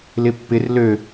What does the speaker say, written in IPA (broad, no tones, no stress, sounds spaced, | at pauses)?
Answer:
l ɪ pː ɪ r l ø